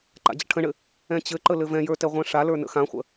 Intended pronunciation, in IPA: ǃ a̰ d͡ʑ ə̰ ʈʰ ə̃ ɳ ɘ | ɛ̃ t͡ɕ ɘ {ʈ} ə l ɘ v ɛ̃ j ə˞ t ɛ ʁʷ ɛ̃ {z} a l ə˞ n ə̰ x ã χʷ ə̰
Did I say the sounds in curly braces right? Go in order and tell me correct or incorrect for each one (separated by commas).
incorrect, incorrect